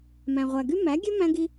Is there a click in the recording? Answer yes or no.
no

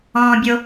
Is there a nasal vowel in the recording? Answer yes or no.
yes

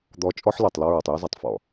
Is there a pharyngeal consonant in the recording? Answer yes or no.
yes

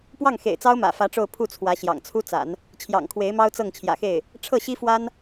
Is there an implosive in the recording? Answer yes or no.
no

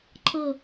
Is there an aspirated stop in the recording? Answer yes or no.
yes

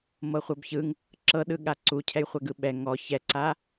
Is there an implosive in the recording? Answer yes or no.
yes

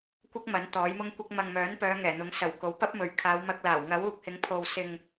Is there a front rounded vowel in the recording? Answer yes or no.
yes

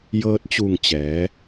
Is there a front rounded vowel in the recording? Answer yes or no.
no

